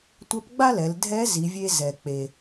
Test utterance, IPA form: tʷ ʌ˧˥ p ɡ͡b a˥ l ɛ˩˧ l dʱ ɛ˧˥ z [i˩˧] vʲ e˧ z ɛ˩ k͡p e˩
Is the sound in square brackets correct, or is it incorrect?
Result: correct